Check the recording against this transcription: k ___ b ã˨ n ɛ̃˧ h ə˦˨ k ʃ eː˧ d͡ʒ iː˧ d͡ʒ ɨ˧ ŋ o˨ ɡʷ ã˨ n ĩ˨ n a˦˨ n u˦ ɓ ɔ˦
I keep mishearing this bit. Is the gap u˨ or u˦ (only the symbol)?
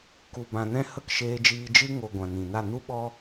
u˨